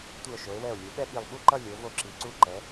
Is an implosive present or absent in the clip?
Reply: present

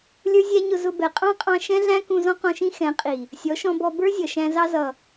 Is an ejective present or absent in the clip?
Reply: present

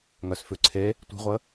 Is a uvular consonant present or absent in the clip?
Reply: present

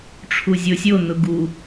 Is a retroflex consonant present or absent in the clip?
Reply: present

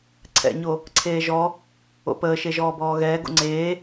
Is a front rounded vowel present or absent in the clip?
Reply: absent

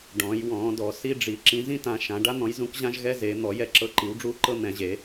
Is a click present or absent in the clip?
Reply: present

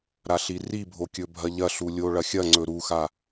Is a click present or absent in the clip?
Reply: present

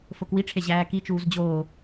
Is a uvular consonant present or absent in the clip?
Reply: absent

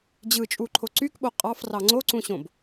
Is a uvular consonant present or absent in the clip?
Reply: present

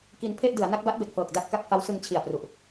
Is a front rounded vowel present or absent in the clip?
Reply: absent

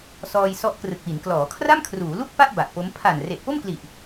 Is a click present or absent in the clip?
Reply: absent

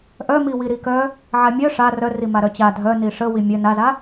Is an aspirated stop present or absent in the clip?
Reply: absent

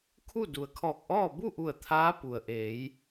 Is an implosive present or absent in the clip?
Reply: absent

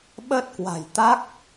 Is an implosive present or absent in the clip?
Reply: present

